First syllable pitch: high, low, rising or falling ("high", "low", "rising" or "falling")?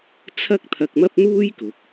high